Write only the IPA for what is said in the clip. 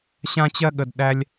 ɕã˦t͡ɕɜ˦ɠə˨d ɗæ˧lʲ

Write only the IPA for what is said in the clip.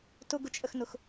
tʊɡʊt͡ʃʼəxnʊx

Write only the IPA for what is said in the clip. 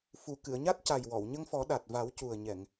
fu˨˩ kɨ˨˩˨ə̯ɲa˦˥t̚ ca˨˩j wɔ˨˩˨wɲə˧ŋfɔ˨˩˦ ɗa˨˩t̚ va˨˩˦wcu˨˩ə̯ɲɛ˨˩˨ŋ

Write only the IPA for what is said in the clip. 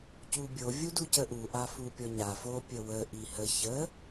cubʲo vʲuducəʔu ʔafupʲɔɲa fo pʲəwə ʔihə çə

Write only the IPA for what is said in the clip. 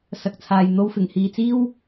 sɐ˨k̚t͡sʰaː˨j n̪o˨˧wfɪ˨˩ŋhiː˨t͡siː˥w

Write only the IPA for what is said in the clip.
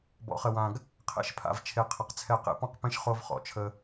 bɔ̰˨χə˨wã˨ɡ | qʰḛ˦ʃpʰa̰˨vt͡ʃʰe˨ qʰɘ˨qt͡sʰɛ˦˨ qḛ˦pɔ̃˦qpẽ˦ʃ χo˦vχɔ̰˨t͡ʃʰə˦

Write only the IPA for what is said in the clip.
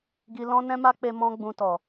ɡi˧ lɔ̃˦ nɛ̃˦ma˦k͡pe˧ mɔ̃˦ɡ͡bũ˧tɔ˨

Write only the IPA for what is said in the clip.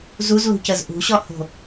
zuzlṳcəz ʔṳɕɔho̤

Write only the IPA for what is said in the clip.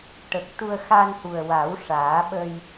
ʈə˨˩k̚t̪u˧ə̯ xa˧nhu˨˩ə̯wa˨˩˦w ʂaː˨˩˦ɓə˧j

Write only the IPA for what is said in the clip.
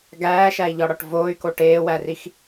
ɡæːʃæi̯ʎɒɽɒʈ voːy̯ko ʈeːwærix

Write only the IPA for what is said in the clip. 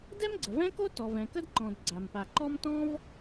dɛ˥mɡ͡ǀə˩vɛ̃˥ko˥ tɔ˩vɛ̃˩kə˥dǃɔ̃˩d ɡ͡ǀa˩mpa˩ǃɔ˥m tɔ̃˥v

